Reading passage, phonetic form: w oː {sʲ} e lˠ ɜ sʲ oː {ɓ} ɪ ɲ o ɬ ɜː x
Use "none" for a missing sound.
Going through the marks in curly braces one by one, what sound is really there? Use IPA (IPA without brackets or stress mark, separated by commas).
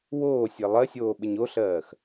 sʲ, ɓ